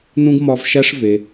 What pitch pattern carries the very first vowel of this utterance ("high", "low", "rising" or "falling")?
high